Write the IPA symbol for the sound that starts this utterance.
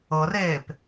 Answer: ɤ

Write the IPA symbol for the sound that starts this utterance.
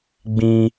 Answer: ɡ͡b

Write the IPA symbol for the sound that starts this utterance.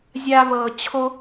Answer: zʲ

